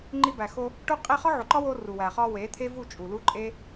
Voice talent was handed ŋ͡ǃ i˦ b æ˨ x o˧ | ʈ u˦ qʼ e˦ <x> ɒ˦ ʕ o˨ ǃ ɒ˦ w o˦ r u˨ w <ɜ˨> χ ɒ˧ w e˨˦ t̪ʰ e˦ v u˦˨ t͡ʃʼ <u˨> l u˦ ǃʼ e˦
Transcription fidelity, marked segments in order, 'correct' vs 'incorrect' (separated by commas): incorrect, incorrect, correct